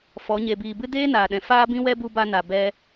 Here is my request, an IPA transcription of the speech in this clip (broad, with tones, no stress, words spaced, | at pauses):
fɔ˨˦ ɲe˨biː˨bɨ˧ deː˦naː˨ɗɛ̃˨ faː˦bĩ˦wɛ˦ bu˦ba˦na˨ bɛ˧